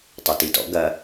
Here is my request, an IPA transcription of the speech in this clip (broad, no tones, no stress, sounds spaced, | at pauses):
tˤ ɘ t i t ɔ̰ ɡ ɐ